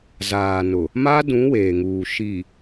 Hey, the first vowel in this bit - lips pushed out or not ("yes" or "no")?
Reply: no